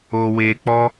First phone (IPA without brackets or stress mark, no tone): o